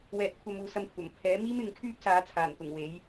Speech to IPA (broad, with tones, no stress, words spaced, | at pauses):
wɛː˧t̚kʷʰɐ˧muː˨sɐ˧m kʷʰɐ˨˩mpʰɛː˨˥miː˥m ɪ˨˧ŋkʰyː˥p̚saː˨˧t͡sʰaː˨˩n t̪ʊ˨˩ŋwe˨˥j